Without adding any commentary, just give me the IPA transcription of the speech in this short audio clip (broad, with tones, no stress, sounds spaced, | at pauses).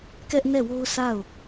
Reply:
k ɛ˦ ʔ n ɛ˦˨ w o˦ ʊ̯ sʰ a˦˨ ʊ̯